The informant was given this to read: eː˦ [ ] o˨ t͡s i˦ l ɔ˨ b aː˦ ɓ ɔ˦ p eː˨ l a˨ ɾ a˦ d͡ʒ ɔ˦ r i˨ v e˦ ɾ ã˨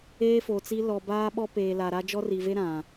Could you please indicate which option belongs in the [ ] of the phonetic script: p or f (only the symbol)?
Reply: f